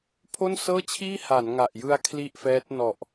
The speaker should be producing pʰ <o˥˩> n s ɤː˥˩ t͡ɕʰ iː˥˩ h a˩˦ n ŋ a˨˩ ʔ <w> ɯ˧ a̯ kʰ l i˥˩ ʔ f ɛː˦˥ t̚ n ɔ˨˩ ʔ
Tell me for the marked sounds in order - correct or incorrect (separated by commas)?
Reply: correct, incorrect